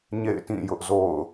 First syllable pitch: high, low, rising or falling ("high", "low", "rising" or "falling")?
falling